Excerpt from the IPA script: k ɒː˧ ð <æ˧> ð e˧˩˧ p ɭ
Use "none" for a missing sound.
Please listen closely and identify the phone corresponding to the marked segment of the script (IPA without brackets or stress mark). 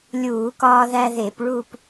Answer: æ˧